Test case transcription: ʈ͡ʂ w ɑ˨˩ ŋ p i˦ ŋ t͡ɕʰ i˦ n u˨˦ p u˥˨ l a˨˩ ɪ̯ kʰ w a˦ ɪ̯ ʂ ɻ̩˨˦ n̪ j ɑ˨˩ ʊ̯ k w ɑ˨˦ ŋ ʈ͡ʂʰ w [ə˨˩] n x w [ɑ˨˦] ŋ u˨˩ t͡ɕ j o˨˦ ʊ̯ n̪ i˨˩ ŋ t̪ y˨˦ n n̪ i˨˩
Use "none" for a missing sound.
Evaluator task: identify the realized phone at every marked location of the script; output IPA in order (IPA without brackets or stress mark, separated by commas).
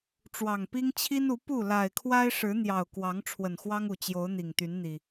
ə˨˩, ɑ˦